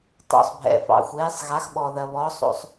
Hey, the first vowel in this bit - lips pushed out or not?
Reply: yes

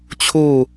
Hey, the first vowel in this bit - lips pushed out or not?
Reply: yes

